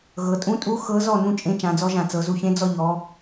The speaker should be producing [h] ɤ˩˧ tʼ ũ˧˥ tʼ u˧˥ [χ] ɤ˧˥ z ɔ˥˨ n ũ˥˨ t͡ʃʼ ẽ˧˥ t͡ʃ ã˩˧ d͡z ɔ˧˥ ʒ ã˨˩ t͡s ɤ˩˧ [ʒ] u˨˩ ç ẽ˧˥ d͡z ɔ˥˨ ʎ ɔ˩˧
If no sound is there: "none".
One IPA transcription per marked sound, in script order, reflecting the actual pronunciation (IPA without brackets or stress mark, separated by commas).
ɣ, x, z